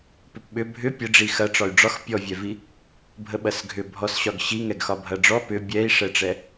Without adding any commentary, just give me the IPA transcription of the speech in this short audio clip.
p ʏ p ɓ ʏ bʱ ʏ pʲ ə ɖ͡ʐ i x ɐ ʈ͡ʂ ɒ y̯ ɖ͡ʐ ɒ x pʲ ɔ vʲ ɛ v i | bʱ ə ɓ ɐ s ɡʱ ʏ bʱ ɔ s ɕ ɒ ɡ ɕ i ŋ ɛ ɡ x ɒ bʱ ɐ ɖ͡ʐ ɔ p ʏ bʲ ɛ i̯ ʂ ɛ ʈ͡ʂ ɛ

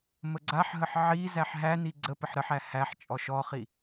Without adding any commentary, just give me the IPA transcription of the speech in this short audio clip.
m ə ɡ͡ǀ a ħ ɦ ə ħ ʕ i z æ ħ ɦ æ n i ɡ͡ǀ ə p ə ħ ɾ ə ħ æ h æ ħ t͡ʃʼ ɔ ʃ ɔ χ i

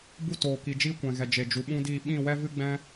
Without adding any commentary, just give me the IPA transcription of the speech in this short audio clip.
b u˦˨ t oː˨ k i˨ d͡ʒ iː˦ kʷ ɛ̃˨ ɣ ɛ˨ d͡ʒ e˨ d͡ʒ u˨ ɓ ũ˦ d iː˦˨ ɓ ĩ˦˨ w ɛ˦ v ɨ˦ ɡ͡b ɛ̃˦

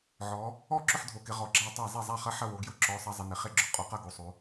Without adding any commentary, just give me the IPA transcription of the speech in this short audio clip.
ʕ ɔː˨˦ | ɔ˥˨ ǁ ʊ˥˨ ħ dʱ o˨˦ k ɪ˨˦ ʁ ɔ˨˦ ɡ͡ǁ æ˥˨ tˤ æ˥˨ zˤ e˥˨ zˤ æ˥˨ χ ɐ˥˨ ħ ɐ˥˨ w o˨˦ ɡ j ʊ˥˨ ǁ ɔː˨˦ sˤ ɐ˨˦ zˤ ɪ˨˦ n e˨˦ χ e˥˨ ɡ͡ǁ ʊ˨˦ qʼ o˨˦ q ɐ˥˨ ɡ o˨˦ sˤ oː˨˦

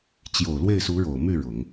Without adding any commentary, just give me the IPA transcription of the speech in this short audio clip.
t͡ɕ j o˨˩ ʊ̯ l w e˥˩ ɪ̯ s u˧˥ ɻ o˨˩ ʊ̯ m y˥˩ ɻ ʊ˨˩˦ ŋ

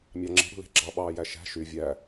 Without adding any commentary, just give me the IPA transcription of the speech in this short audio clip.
mʲ ɑ ŋ͡ǁ i̤ ɽ ṳ l e̤ ɡ͡ǁ ɑ ɓ ɑː j æ ʃ æ̤ ʃ y vʲ æ

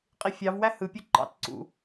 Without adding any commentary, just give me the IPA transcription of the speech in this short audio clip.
qʼ i fʲ ɑ v w æ h ɯ pʲ ø ǃ ɑ̰ t ǀ ṵ

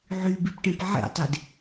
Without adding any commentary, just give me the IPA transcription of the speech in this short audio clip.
ʕ y b i p ʈ ẽ p ʕ ḛ tˤ e d

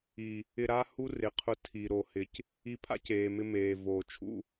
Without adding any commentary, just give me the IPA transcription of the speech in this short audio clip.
i˨ | ɪ˧ ɾ a˦ h u˦ r ɪ˨ qʰ ʊ˧ tʰ i˨ ɾ o˨ h ɪ˨ c | i˧ pʰ a̰˦ c eː˨ m ɪ˧ m eː˨ v oː˨ t͡ʃʰ ṵ˦

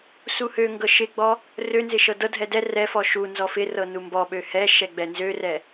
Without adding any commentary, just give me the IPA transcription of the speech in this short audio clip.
s u h ø ŋ ɡ ɤ ʃ ɪ ɡ͡b ɔ | r ø n z ɪ ʃ ɤ d ɤ dʱ ɛ d ɛ r ɛ f ɔ ʃ u n z ɔ f ɪ r ɤ n u m b ɔ ɓ ø h ɛ ʃ ɛ ɡ͡b ɛ n z ø r ɛ

